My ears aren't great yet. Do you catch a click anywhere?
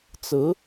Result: no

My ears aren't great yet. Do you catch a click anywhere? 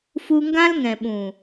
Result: no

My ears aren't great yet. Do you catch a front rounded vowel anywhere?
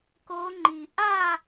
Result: no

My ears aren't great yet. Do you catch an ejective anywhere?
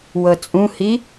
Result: yes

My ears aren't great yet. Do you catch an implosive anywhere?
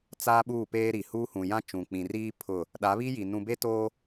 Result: yes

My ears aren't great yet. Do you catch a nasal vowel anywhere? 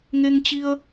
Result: no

